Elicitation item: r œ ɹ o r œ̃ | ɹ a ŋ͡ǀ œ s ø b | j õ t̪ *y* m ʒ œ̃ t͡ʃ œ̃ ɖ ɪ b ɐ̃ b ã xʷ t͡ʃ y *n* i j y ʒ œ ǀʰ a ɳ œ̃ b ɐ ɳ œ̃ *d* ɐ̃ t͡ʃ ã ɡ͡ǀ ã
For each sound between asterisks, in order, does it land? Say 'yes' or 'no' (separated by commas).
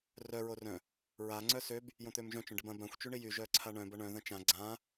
no, no, no